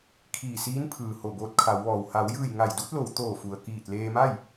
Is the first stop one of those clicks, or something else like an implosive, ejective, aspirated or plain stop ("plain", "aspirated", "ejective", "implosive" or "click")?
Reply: aspirated